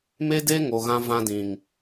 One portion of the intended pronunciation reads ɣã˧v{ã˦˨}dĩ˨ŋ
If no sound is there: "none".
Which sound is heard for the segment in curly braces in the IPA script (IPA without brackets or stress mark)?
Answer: ã˧